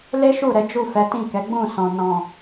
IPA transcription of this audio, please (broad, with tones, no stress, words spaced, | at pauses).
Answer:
le˦ ʃu˦˨ɾɛ˨˦ d͡ʒu˦˨fɛ˨˦tĩ˦˨ kɛ˨˦ɡ͡bũ˦˨sɔ̃˨ nɔ̃˨